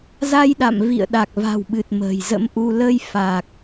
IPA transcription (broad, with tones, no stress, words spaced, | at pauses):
za˧jɗa̰˧˨mvḭ˧˨ə̯ ɗa˨˩k̚va̤˨˩wɓɨ˨˩t̚ mə̤ː˨˩jzə̰˧˥mʔu˧ lə˧j fa˨˩k̚